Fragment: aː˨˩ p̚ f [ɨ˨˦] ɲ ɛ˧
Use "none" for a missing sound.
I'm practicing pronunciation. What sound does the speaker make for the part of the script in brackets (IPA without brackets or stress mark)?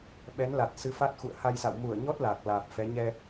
ɛ˨˦